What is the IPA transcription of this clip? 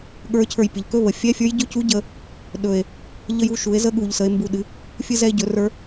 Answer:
ɠə˞˧˥cʰə˞˧j pʲə˩˧ʎkɵ˧˥˧βə˩˧ fʲɛ˧˥˧fʲə˞˧˥j ɟɵ˧˥˧cu˧˥ ɟə˧ | ɗɵ˨˩e̯ | ʎə˧ju˧ʃu˩˧e̯ zə˧˥˧ɠu˨˩ʎ sə˩˧e̯mbu˨˩ɗɨ˩˧ | fʲɨ˧zɛ˧e̯ɟɵ˩˧ rə˞˧˥

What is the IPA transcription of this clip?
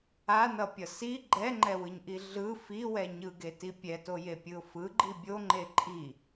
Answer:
anʌpʲʌ si ɡ͡ǃɛŋ͡ǃɛwɯɲʔi ɮɯ fiwɛ ɲɯɡeti pʲɛtojepʲɯʊ̯ fɯɡ͡ǃi bʲoŋ͡ǃe ǃʼi

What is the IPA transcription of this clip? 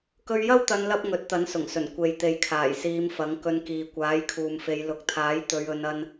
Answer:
kɵ˧ɥjɐ˥wt̪ɐ˨˧nlɐ˧p̚ ŋɵ˨˥t̚t̪ɐ˨˥nsʊ˨˩ŋsɵ˨˩n kʷe˨j t̪e˨jkʰaː˨˩jsiː˨˧m fɐ˨˥ŋkɵ˧nkiː˨ kʷaː˨˥jkʰuː˨mfe˨˧j lʊ˨k̚t̪ʰaː˨˥j t̪ɵ˨˧ɥɵ˨˧nɐ˧n

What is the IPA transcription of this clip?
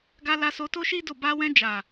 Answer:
ɡa˧la˧so˧ to˦ʃi˦ do˦˨ ba˧wɛ̃˧ d͡ʒa˨

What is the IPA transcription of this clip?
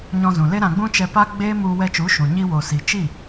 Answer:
ɲɔ̃˧zũ˨le˦ɾã˧ ɡ͡bũ˦t͡ʃɛ˧pa˦ ɡ͡beː˦mu˧ wɛ˧t͡ʃu˨˦ʃũ˨ ɲi˧wo˨ si˨t͡ʃi˦˨

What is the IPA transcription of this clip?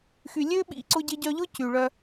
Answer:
xy˨lʲø˦ ɓḭ˦˨ǀʊ˦ɟɪ˦ɟœ˦ ʎʊ˦ cy˨ɭœ˦

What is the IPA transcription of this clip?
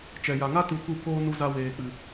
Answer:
t͡ʃɛ˨ja˨ŋa˦ tu˧ku˦˨ koː˦ nu˧za˧ weː˨k͡pɨ˨

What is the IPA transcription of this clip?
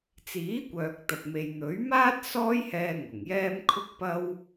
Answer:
t͡siː˨˥kʷœː˨k̚t̪ɐ˨p̚ me˨jn̪ɵ˨˥ɥmaː˥t̚ sɔː˥jhɛː˧ ŋʊ˨˩ŋjɛː˥m kʰʊ˥k̚pɐ˥w

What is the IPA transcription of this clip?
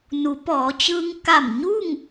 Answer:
nu˩˧pɔː˩˧t͡ɕɯː˧ŋ ka˧˩mɲu˥˨ŋ

